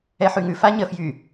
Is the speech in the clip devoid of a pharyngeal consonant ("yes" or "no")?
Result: no